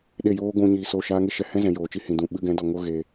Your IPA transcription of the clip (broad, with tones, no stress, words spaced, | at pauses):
ɗe˦˨joː˦ ɡʷũ˧ ɲiː˧soː˦˨ʃaː˦ ŋe˦ ʃɛ˧ hɛ̃˦zɛ̃˨ joː˨t͡ʃi˧hĩ˨dũ˨ ɓɨ˧ɡɛ̃˨˦dɔ˨ ŋo˦ɣeː˧